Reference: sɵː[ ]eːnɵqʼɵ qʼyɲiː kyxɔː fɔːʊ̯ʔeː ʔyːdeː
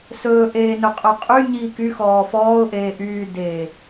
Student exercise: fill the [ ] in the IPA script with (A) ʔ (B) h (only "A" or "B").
A